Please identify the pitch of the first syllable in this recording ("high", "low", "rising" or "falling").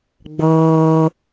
high